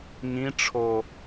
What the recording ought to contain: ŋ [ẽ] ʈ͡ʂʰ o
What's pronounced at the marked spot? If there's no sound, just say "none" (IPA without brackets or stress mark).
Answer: ĩ